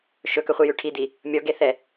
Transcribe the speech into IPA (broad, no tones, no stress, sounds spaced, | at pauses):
ʃ ɵ k ɵ χʷ i j ʉ ʈʰ i d̪ i | mʲ ɔ ɡ e θ ɛ